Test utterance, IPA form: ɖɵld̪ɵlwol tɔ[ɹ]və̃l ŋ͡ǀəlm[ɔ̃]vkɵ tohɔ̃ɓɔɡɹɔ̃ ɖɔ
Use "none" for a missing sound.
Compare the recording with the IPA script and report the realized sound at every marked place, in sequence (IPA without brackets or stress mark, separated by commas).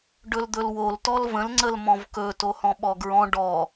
l, ɔ̃